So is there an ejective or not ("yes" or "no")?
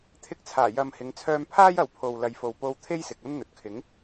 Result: no